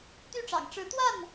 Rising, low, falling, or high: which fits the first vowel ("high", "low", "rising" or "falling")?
falling